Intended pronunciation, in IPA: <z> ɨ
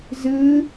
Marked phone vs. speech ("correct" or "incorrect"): correct